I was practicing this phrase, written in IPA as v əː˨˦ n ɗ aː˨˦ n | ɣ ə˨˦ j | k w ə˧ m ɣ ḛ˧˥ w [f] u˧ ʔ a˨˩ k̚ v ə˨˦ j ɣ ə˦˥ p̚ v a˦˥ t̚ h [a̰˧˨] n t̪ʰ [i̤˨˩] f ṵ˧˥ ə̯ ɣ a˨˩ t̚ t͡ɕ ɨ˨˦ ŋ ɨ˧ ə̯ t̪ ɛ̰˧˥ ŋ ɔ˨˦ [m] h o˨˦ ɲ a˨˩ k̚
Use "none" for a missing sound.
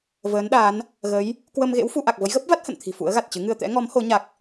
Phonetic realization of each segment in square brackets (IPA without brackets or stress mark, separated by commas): f, ə̰˧˨, i̤˨˩, m